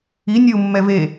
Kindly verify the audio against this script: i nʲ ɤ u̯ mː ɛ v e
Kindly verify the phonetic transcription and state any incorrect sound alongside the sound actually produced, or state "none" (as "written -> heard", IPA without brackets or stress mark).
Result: none